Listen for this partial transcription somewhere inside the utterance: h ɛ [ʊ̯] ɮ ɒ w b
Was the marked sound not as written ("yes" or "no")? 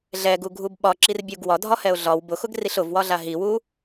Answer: no